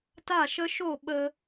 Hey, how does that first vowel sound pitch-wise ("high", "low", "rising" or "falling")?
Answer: falling